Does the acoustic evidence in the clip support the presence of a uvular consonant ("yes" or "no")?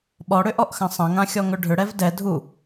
no